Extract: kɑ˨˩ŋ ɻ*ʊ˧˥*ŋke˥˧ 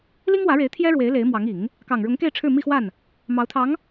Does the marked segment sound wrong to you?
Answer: no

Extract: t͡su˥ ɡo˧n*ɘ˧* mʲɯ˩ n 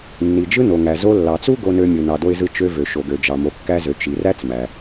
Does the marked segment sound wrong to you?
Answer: yes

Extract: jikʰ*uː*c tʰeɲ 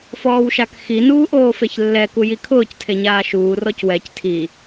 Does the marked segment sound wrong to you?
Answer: yes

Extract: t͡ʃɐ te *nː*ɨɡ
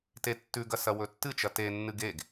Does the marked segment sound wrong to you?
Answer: no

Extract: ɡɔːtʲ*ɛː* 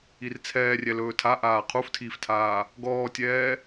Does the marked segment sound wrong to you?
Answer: no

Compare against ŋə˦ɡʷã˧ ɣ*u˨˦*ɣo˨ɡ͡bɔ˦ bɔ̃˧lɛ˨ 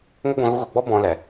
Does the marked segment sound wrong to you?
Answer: yes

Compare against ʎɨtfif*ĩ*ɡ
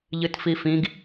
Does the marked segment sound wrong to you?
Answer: no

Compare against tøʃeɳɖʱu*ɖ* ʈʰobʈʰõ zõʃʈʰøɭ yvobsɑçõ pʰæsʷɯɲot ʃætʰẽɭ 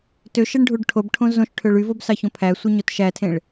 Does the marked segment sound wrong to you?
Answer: no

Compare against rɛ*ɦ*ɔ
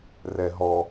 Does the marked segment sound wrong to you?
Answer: no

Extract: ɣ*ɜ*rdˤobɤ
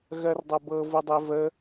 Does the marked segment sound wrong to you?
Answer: no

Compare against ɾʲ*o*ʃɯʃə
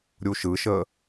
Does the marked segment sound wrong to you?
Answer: yes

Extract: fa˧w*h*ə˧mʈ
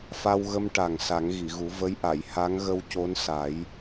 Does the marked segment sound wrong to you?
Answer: yes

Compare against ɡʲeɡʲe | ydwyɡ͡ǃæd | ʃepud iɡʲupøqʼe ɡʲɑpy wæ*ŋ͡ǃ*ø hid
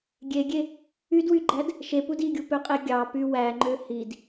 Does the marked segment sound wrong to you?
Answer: no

